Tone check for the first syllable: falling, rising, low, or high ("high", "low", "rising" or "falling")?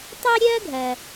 high